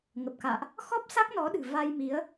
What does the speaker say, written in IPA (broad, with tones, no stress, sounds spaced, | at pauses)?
ŋ ə˨˩ p̚ k a̰ː˧˨ ʔ | x ɔ˦˥ p̚ s a˦˥ k̚ n ɔ˨˦ ɗ ɨ̤˨˩ v a˧ j m i˨˦ ə̯